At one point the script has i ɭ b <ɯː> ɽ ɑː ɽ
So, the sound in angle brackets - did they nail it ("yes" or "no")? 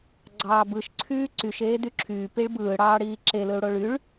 yes